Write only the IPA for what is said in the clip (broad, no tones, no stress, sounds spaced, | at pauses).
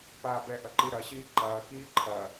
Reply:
p aː b ɛ ʔ ɐ ǃ i ɾ ɐ ɕ iː ǃ ɐː k iː ǃʰ ɐ